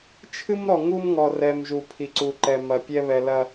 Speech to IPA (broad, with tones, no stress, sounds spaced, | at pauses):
t͡ʃʰ ɨ˦ m ɾ ɔ˨ ŋ u˦ m ŋ ɔ˨ r ɛ˨ m ʒ u˨ pʰ i˨ ǀ u˨ ǃ ɛ˨ m ɐ˨ pʲ ɛ˦ β ɛ˨ l ɐ˨